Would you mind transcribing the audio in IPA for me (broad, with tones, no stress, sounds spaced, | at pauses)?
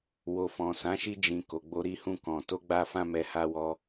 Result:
w o˨ f ɔ̃˨ s ã˨˦ ʃ i˧ d͡ʒ ĩ˨ k o˨ ɡ͡b o˧ ɾ i˧ h ũ˧ k ɔ̃˨ t o˧ ɡ͡b a˧ f ã˦ m ɛ˧ h a˦ w ɔ˦